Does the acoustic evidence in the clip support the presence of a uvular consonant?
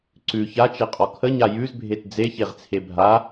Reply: yes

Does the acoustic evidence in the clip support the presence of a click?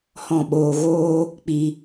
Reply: no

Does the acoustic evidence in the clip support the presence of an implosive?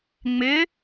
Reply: no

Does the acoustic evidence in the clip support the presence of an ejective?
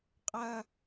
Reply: yes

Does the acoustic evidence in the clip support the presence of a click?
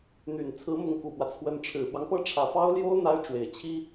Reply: no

